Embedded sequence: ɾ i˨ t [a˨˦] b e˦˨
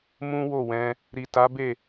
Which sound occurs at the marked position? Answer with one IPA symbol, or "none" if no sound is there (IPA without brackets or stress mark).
a˨˦